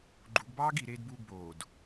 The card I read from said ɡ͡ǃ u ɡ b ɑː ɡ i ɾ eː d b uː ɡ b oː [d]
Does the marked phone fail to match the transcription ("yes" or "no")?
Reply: no